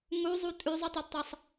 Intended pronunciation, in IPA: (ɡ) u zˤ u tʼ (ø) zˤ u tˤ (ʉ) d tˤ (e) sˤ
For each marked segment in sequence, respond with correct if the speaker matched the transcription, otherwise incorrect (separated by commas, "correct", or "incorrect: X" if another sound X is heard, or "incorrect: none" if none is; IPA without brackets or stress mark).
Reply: incorrect: ŋ, incorrect: ʉ, incorrect: u, incorrect: i